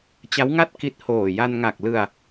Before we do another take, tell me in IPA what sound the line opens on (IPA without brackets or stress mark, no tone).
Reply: t͡ɕ